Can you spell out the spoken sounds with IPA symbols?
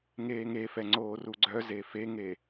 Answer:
ŋ eː ŋ e f ɛ ŋ͡ǀ oː r u ɡ͡ǀ œ z e f e ŋ e

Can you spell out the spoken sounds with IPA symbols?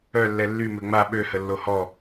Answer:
œ lː ɛ lː y m ø ŋ͡m a ɓ ø h ə lː o h ɔ

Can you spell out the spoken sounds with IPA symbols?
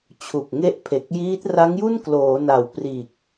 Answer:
t͡ɕʰ u˨˩ k̚ ŋ e˦˥ ʔ pʰ e˨˩ k̚ j iː˦˥ t̚ r a˦˥ ŋ j u˥˩ n k l oː˩˦ n a˨˩ w p r iː˨˩ k̚

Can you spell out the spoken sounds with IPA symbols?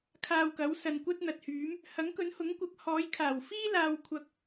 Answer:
kʰ aː˧ w k ɐ˨˥ w s ɐ˧ n kʷ ɐ˥ t̚ n̪ ɐ˨ t̚ h yː˨˥ m | h ɐ˨˥ ŋ k ɵ˨˥ n h ʊ˨˥ ŋ kʷ ɐ˨˥ k̚ h ɔː˨˥ j kʰ aː˨˩ w f iː˥ l aː˧ w kʷʰ ɐ˧ k̚

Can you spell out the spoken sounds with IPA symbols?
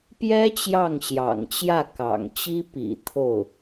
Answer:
p j ɛ˥ t͡ɕ j ɑ˥˩ ŋ ɕ j ɑ̰˨˩ ŋ t͡ɕ j ä˥˩ k ɑ̰˨˩ ŋ t͡ɕ i˥ p ḭ˨˩ t̪ʰ o˥˩ ʊ̯

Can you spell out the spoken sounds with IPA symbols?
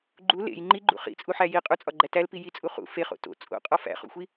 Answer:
ɡ͡ǃ u l ḛ j ŋ͡ǃ i ɡ͡ǃ ṵ χ ḭ t͡sʼ u ħ æ j i qʼ u t͡sʼ ɒ ɡ͡ǃ æ t æ l p i j i t͡sʼ u χ ṵ f e χ o̰ t o̰ t͡sʼ o̰ qʼ ɒ f æ̰ χ ṵ xʷ i

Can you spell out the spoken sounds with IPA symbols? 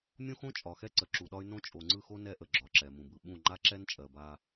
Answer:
mʲ õ˦ x õ˦ t͡ʃʼ ɒ˨ x ɛ˦ ǀ ə˨ ǁ u˨ ɗ ɒ˦ y̯ n õ˦ t͡ʃʼ o˨ ŋ͡ǀ ɯ˦˨ x o˦ n ɛ˦ ʔ ə˨ ɡ͡ǁ ɒ˨ ǁ ɛ˨ m ũ˨ b ɯ˨ ɓ ũ˦˨ ŋ͡ǃ a˦ ǁ ɛ˦ n t͡ʃʼ ɜ˨ b a˦

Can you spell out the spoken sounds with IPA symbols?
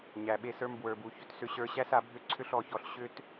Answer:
ɲ æ˨ ɓ e˧ s ə˞˧ m b w ə˞˨ b u˨ ç ʏ˨ t s ʏ˧ ɕ ə˞˧ ɕ æ˦ s a˨˦ bʱ ʏ˦ ǀʰ ʏ˦ ɬ ɔ˧ ç ɔ˧ ɬ ɕ ʏ˦ t

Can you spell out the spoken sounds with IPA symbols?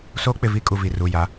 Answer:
s oː˦ k͡p ɪ˨ v i˦ kʼ u˨ v i˨ r u˨ j a˨˦

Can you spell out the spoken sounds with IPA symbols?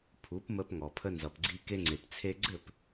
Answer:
pʰ u˩˥ p m ə˧ p ŋ ɔ˩ pʰ ə˧ n z ʌ˩ p ɡ͡ǀ i˧ k e˧ ŋ͡ǀ e˩ p t͡sʰ e˧ ɡ͡ǀ ɘ˥˩ p

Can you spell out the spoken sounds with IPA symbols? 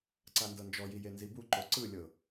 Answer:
ǀ a n d ɤ n d͡ʒ ɔ j i j e n z i b u ǃ o ǀ ɯ lʲ ɤ

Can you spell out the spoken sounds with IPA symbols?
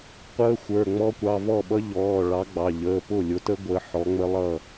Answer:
qʷ əː˦˥ xʷ ə˞˩˧˩ ŋ͡m ɔ˦˥ kʷ ɑ˩˧˩ v ɔ˥˩ ɓ ʌ˦˥ ʎ ɔː˩˧˩ ɭ ɑ˨˥ ɡ͡b ɑ˩˧˩ ʎ əː˩˧˩ p ʊ˥˩ lʲ ʊ˨˥ t ə˦˥ ɡʷ əː˨˥ ħ ɔ˨˥ ŋ͡m ə˦˥ lˠ ʌ˥˩

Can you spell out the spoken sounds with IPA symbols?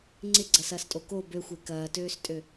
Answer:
ŋ͡ǀ ɪ ɡ͡ǀ ɐ s ɐː s tʼ o k o b ø xʷ e k ɐː t øː s tʼ ø

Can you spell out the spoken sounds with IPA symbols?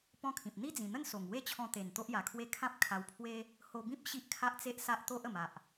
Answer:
p ɔ̃˦ kʰ ĩ˨ p̚ n̪ i˦ d͡z ĩ˨˩ n̪ ə˥˧ n s o˨˩ ŋ w e˦ t͡ɕʰ ɔ̃˧ t̪ e˨˩ n t̪ o˦ ʔ j a˨˩ kʰ w e˦ kʰ ã˦ p̚ kʰ a˧ w pʰ w e˦ | h o˧ b ĩ˦ p̚ ɕ i˦ ʔ kʰ a˦ ʔ t͡s e˦ ʔ s a˦ ʔ t̪ o˦ ʔ ə˨˩ m a˨ ʔ

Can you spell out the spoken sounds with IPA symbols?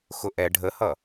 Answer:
x ʊ ʔ ɛ ɖʱ ə h ʌ

